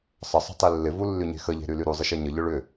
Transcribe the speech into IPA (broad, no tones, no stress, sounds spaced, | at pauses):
sˤ ə sˤ ə̤ tˤ e lː ɪ v u lː y ɲ e̤ x ə ʎ e̤ ɾ y l y ɾ u zˤ ɪ ʃ e ɲ ə ʎ ʊ ɭ ʏ